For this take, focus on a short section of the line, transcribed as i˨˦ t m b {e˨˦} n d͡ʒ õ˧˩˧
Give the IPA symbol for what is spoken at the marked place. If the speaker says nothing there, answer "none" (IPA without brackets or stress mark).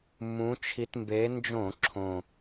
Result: e˨˦